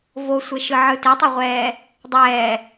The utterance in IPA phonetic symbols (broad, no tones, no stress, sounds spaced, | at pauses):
v o sʷ e ʃ ɯ ʕ ɯ t e tˤ e ʁʷ ɛː | dˤ ɛː